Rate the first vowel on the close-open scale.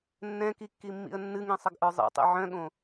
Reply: mid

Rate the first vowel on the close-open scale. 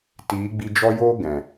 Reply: close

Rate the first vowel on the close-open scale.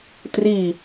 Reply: close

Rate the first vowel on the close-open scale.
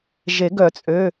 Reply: mid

